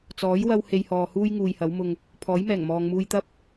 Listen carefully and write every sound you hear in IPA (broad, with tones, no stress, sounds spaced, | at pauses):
t͡s ɔː˨˥ j w ɐ˧ w h e˧ j h ɔː˨ h uː˥ j ŋ uː˨ j h ɐ˨˥ w m ʊ˧ ŋ | pʰ ɔː˨˥ j m ɛː˨˩ ŋ m ɔː˨ ŋ m uː˧ j t̪ ɐ˥ p̚